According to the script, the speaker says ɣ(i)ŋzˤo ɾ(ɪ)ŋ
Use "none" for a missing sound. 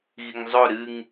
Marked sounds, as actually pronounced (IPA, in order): i, ɨ

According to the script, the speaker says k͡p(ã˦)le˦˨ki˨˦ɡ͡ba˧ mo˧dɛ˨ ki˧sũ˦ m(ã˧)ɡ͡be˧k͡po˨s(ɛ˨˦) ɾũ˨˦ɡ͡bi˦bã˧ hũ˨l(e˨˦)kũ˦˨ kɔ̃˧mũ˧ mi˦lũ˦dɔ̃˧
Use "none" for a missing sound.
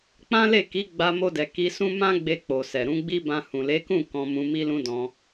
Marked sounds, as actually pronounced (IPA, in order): ã˦, ã˦, ɛ˨, e˨˦

